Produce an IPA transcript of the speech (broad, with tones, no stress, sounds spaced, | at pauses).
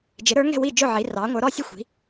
d͡ʒ ɪ˩˧ ɾ ə˞˩˧ ŋ ɛ̤˦˨ w i˦˨ d͡ʒ ʊ˦˨ ʕ i˩˧ r ɑ˩˧ ŋʷ ə˞˩˧ ɾ ɔ˦˨ sʲ ə˦˨ xʷ i̤˩˧